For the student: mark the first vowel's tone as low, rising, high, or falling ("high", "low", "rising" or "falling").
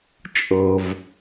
low